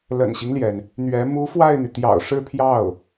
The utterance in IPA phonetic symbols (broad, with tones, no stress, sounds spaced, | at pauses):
l ə̰˨˩ n ɕ i˦ ŋ l j ɛ˩ n | n̪ ɥ ɛ˧˥ m u˧˥ f w a˥˩ ɪ̯ n̪ y˩ t̪ j ɑ̰˨˩ ʊ̯ ʂ ɻ̩˥˧ pʰ j ɑ˥˩ ʊ̯